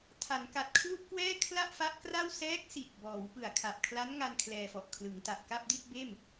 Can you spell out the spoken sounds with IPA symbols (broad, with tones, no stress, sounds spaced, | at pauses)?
tʰ a˩˦ n k a˨˩ t̚ kʰ l u˥˩ ʔ k w ɛː˥˩ kʰ l a˥˩ ʔ f a˦˥ ʔ k r a˥˩ w s ɛː˦˥ k̚ s i˨˩ t̚ b ɔː˩˦ w p ɯ˨˩ a̯ kʰ a˨˩ p̚ kʰ l a˦˥ n ŋ a˧ n kʰ l ɛː˧ f ɔ˨˩ ʔ kʰ l ɯ˩˦ ŋ t a˨˩ ʔ k a˥˩ p̚ d i˥˩ t̚ b eː˥˩ m